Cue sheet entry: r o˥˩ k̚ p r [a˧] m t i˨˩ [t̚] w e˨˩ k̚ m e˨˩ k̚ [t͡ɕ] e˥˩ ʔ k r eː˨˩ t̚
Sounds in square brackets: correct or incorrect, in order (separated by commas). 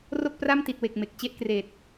incorrect, correct, correct